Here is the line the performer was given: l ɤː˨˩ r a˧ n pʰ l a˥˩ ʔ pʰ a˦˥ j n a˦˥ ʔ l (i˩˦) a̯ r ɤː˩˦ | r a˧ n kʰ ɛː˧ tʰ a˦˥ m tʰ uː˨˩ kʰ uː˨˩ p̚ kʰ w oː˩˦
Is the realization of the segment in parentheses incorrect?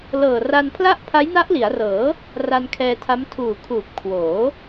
no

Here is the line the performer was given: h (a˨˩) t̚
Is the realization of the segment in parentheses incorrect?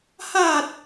no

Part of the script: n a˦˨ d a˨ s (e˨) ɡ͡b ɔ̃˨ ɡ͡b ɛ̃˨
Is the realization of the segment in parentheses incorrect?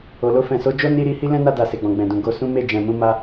no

